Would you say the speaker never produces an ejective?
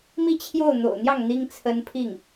yes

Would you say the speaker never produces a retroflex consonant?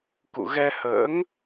yes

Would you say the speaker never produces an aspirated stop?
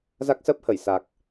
yes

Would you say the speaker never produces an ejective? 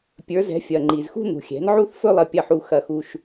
yes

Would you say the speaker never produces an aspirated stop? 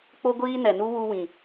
yes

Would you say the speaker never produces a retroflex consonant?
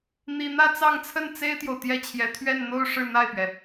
no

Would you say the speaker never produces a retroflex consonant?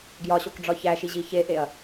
no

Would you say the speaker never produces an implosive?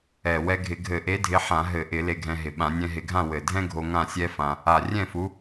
no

